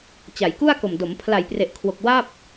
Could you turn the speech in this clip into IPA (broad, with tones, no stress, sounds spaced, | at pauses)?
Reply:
t͡ɕ a˩˦ j k u˥˩ a̯ k o˨˩ m d o˩˦ m pʰ l a˨˩ j p r e˨˩ ʔ kʰ w o˨˩ k̚ w a˥˩ p̚